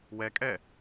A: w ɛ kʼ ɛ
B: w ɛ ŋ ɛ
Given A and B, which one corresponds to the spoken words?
A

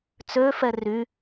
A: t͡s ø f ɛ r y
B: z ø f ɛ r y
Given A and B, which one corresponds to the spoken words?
A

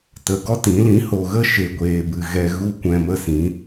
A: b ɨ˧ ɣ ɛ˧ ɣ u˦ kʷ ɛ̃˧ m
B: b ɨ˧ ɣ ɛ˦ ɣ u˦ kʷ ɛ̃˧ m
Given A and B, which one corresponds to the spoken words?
A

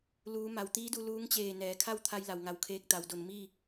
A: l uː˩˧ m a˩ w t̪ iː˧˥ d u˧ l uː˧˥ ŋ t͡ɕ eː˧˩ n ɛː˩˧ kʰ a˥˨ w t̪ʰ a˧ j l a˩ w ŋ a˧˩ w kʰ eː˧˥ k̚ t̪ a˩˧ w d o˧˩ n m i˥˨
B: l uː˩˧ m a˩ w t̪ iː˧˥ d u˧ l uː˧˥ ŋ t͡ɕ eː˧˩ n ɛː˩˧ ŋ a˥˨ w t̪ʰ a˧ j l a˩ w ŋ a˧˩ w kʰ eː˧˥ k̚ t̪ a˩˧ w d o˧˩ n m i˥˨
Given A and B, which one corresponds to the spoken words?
A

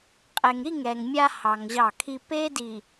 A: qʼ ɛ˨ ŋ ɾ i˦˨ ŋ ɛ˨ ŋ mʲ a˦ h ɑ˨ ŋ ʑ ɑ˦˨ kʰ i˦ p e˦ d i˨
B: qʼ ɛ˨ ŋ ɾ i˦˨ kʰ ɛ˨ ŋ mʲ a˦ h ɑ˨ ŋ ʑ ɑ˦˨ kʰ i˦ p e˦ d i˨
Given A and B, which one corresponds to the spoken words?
A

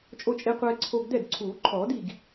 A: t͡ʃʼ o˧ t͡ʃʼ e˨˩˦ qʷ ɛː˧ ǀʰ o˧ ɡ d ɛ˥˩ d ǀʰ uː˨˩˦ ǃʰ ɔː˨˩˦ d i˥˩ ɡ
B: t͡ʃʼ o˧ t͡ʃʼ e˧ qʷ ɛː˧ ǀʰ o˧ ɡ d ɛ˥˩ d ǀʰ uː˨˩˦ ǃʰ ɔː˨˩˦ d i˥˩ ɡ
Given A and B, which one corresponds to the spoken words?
B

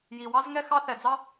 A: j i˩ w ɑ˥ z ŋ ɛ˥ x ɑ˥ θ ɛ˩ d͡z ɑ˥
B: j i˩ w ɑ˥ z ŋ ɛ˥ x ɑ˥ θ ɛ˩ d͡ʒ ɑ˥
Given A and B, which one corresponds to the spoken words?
A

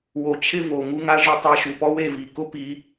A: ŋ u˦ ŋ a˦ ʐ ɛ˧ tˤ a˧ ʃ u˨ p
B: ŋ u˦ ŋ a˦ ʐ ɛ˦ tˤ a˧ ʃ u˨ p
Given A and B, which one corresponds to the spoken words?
B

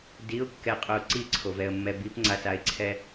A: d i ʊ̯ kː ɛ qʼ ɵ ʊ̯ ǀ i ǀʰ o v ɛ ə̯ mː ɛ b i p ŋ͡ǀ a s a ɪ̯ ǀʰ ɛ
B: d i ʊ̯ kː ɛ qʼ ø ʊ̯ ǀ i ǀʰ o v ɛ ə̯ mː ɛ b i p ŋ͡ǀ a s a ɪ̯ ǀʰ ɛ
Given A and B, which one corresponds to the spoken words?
A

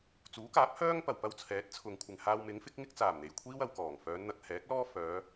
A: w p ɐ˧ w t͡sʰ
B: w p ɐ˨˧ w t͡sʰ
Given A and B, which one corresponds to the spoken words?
A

